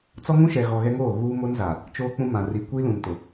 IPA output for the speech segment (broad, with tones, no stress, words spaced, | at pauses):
t͡sɔ˦ŋũ˦ʃɛ˨ɣɔ˨ ɣɛ˦ŋoː˦˨ ɣuː˦ mo˦nza˨ | t͡ʃoː˦k͡pũ˦mã˨ ri˨kʷi˦lũ˨ntʊ˨